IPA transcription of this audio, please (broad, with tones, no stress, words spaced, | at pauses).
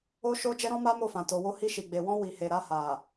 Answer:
o˦ʃo˦ d͡ʒɛ˦ɾɔ̃˦ma˦ mo˦˨fã˨to˨wo˧ hi˧ʃi˨ɡ͡be˨ wɔ̃˧ wi˨he˨ ɾa˧ha˨